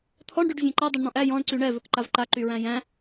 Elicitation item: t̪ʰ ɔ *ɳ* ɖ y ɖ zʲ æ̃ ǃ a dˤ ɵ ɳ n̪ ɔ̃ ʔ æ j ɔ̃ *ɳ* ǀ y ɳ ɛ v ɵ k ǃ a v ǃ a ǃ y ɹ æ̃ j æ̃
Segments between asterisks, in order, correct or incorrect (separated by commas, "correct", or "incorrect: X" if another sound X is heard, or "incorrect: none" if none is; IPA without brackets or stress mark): correct, correct